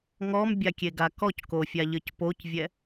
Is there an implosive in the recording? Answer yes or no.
no